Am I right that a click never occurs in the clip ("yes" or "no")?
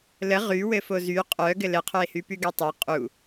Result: yes